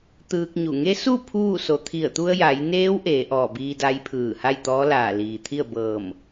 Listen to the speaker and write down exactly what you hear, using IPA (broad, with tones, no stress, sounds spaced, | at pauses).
t̪ ɯː˧ k̚ ɲ u˧˩ ŋ e˧˥ s u˥˨ pʰ uː˥˨ s o˩ t̪ʰ i˧˩ ə̯ t̪ u˧ ə̯ j a˩˧ j n eː˧˥ w ʔ eː˩˧ ʔ ɔː˧˩ b iː˧ d a˧˥ j pʰ ɯː˧˩ h a˥˨ j t̪ ɔː˧˥ l aː˧˩ l iː˩ t̪ʰ i˥˨ ə̯ b ɤː˧˩ m